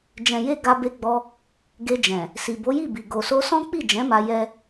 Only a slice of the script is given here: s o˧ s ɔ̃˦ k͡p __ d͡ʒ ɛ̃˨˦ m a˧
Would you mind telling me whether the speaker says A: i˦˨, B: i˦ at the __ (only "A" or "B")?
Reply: A